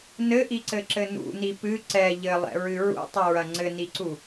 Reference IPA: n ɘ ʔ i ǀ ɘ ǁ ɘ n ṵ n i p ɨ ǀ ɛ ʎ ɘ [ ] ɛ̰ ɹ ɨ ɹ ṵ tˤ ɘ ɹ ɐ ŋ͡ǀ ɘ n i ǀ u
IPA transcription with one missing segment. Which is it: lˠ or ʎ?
lˠ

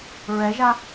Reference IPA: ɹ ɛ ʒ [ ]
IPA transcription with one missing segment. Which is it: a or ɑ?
a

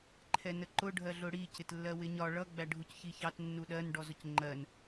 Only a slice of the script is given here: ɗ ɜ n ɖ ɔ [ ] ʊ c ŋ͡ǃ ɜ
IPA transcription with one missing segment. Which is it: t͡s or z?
z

